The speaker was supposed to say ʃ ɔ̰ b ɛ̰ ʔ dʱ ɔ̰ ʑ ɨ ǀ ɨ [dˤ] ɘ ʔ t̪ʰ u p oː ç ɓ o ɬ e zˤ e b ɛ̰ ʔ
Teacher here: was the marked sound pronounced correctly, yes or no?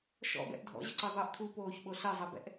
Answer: no